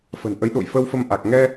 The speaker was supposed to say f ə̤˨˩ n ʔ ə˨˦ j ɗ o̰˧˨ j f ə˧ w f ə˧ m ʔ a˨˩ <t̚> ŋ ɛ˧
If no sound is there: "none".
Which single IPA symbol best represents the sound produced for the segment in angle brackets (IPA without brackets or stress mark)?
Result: k̚